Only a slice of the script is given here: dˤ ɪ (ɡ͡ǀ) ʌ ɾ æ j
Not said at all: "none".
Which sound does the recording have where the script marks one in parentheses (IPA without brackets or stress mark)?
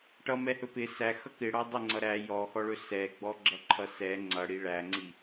ŋ͡ǀ